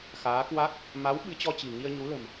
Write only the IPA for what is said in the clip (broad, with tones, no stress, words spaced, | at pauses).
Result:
xaː˨˦kwa˦˥k̚ | ma˨˦w ɓɨ˨˦t͡ɕɔ˧t͡ɕi̤˨˩ ŋi˧ə̯ɲu˨˦lə̤˨˩m